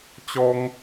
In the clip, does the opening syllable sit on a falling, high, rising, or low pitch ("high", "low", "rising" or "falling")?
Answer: high